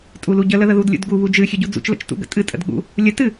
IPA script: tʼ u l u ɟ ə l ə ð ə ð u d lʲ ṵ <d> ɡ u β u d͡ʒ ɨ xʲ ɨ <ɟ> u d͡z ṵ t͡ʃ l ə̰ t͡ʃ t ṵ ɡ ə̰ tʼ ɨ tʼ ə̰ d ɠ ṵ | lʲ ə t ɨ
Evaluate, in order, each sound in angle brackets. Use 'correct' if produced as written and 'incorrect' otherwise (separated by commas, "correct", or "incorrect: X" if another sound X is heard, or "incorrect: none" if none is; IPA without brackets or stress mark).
correct, correct